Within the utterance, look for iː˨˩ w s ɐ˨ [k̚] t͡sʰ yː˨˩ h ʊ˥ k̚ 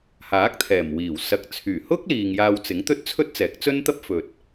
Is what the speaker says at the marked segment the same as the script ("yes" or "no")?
yes